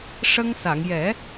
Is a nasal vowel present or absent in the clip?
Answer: absent